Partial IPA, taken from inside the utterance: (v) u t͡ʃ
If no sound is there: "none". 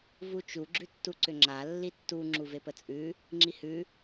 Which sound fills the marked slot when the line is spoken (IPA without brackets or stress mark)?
v